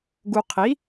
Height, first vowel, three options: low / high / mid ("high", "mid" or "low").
high